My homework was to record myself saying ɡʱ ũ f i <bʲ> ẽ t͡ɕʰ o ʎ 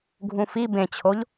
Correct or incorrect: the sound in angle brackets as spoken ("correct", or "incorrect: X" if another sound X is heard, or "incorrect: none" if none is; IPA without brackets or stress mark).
incorrect: b